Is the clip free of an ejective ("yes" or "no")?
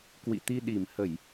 yes